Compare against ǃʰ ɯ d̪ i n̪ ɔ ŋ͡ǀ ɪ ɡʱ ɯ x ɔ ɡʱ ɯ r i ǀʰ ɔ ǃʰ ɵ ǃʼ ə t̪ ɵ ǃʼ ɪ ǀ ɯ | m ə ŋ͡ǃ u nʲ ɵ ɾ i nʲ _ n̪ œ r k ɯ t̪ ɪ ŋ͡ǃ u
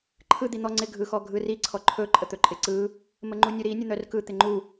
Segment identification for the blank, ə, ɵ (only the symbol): ə